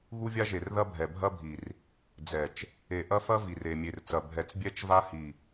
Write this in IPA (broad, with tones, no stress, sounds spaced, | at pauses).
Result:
ɣ u˦ vʲ a˦ ʒ e˨ r ð ɐ˦ bʱ ɛ˨ bʱ ɐ˦ bʱ i˨ r | d͡z ɛ˨ t͡ʃ | e˨ ʔ ɐ˦ f ɐ˦ v i˨ r e˨ mʲ e˨ r t͡s ɐ˨ bʱ ɛ˨ t͡s bʲ ɛ˦ t͡ʃ v a˦ h i˨